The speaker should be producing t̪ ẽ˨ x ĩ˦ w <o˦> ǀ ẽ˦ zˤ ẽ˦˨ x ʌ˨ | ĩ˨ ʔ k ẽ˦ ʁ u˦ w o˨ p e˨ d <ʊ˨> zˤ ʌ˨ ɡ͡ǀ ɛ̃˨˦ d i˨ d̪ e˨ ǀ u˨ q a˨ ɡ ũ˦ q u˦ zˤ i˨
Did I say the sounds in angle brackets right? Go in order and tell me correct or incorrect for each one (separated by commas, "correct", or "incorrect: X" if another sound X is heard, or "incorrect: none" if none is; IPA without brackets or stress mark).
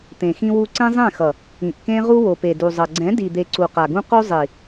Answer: incorrect: u˦, incorrect: u˨